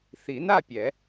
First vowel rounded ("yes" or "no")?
no